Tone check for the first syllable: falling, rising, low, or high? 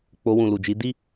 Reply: high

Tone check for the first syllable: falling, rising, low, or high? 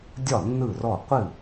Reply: falling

